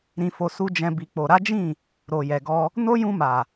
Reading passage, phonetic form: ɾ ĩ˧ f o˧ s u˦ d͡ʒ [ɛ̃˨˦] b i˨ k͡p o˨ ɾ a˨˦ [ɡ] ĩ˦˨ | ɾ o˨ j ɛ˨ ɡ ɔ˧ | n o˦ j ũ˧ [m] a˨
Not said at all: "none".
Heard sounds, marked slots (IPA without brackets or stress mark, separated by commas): ɛ̃˧, d͡ʒ, m